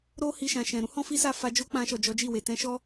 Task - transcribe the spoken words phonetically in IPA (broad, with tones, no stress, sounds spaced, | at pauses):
ɾ o˦ h i˧ ʃ ã˨ ʃ ɛ̃˨ ɾ ũ˧ h ɔ̃˦ f i˦ s a˦˨ f a˧ d͡ʒ o˦ k͡p ã˧ ʃ ɔ˨ d͡ʒ ɔ˨˦ d͡ʒ i˦˨ w e˨ t ɛ̃˧ ʃ ɔ˦